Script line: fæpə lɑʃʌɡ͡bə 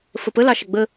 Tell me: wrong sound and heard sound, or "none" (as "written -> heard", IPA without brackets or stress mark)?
æ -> ə